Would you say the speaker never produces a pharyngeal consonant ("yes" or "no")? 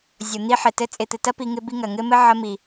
no